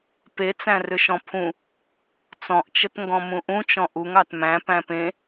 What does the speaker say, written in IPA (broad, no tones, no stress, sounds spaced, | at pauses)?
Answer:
p e t͡s æ̃ r ʏ ʃ ɔ̃ pʰ ũ | t͡s ɔ̃ ʔ t͡ʃ ə t ŋ ɡ ɔ̃ m ũ ʔ ũ t͡ʃ ɔ̃ ʔ u ŋ ɑ t m æ̃ p æ̃ p ẽ